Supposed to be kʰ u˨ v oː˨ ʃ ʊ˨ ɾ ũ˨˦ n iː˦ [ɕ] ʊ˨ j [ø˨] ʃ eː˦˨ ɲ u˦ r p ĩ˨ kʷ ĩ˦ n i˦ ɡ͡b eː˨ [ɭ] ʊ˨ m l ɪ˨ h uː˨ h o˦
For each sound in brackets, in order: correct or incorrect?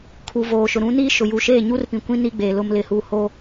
incorrect: ʃ, incorrect: u˨, incorrect: l

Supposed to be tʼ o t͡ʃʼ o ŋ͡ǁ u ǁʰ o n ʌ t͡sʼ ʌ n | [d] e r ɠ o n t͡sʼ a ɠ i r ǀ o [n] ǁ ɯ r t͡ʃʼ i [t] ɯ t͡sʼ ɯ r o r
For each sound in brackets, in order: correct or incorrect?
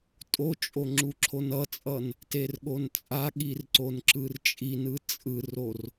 incorrect: t, correct, incorrect: n

